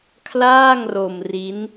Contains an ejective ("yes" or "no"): no